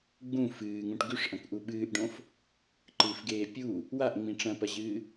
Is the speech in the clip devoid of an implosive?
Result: no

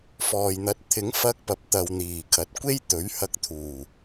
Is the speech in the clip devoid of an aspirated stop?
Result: no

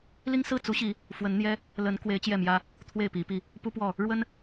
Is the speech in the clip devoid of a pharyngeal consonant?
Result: yes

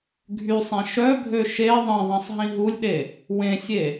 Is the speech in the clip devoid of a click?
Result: yes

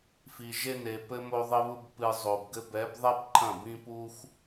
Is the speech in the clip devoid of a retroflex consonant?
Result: yes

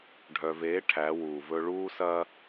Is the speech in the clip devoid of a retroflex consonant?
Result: no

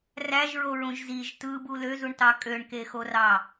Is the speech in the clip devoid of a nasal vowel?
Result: no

